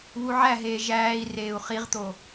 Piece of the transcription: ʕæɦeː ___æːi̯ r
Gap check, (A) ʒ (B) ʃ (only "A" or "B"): A